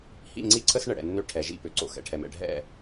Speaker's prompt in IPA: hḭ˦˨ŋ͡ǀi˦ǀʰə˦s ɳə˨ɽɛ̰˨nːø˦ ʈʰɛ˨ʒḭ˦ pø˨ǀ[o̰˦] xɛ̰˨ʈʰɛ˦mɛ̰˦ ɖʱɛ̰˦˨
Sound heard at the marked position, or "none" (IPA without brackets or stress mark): o̰˦